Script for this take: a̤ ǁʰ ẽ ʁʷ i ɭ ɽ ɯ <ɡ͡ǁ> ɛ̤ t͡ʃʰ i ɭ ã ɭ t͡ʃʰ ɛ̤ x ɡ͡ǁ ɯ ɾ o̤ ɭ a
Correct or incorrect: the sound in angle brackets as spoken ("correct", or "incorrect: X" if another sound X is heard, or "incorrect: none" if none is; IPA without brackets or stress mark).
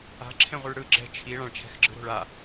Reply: correct